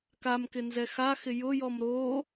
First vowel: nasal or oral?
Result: oral